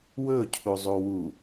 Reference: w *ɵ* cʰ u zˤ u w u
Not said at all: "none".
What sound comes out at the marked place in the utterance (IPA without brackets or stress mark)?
ɵ